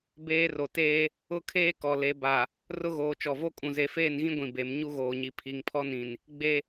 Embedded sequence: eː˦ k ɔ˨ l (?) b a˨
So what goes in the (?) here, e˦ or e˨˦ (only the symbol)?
e˨˦